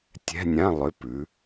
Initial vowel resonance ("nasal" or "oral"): oral